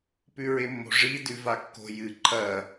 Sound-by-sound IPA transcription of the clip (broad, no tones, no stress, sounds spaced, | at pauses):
p ʉ ɹ e mː o̤ ʐ i d ʉ v a kː o̤ j ɨ ǃʰ ɐ